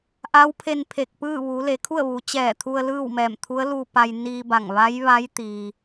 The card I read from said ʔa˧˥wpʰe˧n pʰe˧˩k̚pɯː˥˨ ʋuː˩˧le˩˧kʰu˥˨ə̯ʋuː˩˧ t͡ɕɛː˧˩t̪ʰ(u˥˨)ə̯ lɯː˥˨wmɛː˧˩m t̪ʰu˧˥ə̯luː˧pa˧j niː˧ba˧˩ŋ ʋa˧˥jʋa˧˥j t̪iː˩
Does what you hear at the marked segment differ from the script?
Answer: yes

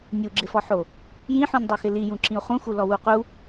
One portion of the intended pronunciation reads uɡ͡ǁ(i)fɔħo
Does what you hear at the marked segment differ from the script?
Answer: yes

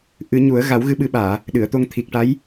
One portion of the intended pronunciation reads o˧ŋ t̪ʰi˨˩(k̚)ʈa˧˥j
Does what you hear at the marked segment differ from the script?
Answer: no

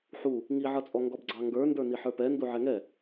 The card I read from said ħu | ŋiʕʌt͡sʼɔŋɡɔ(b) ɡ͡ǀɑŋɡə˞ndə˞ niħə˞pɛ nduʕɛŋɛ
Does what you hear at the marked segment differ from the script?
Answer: no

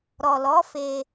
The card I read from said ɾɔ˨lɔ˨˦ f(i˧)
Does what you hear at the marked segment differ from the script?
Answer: yes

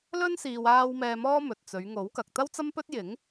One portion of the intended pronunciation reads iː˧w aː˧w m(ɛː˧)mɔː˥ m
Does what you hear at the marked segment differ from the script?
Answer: no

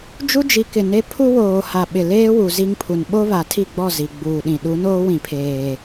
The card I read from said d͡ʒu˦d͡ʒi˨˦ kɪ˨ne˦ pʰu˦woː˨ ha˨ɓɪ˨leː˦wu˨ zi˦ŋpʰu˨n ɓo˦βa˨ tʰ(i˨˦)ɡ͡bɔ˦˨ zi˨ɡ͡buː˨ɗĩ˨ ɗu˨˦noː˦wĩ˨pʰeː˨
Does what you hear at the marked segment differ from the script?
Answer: yes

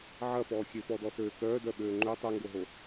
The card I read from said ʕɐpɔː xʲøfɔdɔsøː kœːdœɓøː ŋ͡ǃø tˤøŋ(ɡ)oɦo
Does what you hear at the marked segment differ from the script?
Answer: no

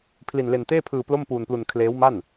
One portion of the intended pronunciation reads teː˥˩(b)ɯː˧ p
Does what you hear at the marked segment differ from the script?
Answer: yes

